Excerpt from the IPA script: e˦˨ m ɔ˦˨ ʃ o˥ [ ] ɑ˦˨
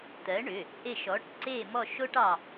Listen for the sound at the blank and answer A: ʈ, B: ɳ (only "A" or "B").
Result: A